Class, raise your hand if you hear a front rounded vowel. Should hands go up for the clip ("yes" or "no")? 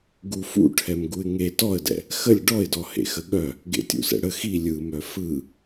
yes